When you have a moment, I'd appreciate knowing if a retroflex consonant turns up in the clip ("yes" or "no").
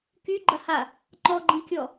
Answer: no